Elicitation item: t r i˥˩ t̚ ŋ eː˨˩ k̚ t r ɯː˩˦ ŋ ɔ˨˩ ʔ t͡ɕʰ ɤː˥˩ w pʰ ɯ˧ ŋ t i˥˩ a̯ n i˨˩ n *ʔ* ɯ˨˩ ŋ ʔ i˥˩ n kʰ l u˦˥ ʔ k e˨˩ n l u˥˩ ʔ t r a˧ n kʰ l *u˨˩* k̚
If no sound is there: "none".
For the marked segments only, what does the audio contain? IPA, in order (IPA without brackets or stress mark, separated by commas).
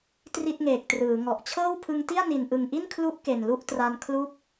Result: ʔ, u˦˥